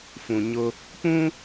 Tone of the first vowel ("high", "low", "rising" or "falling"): low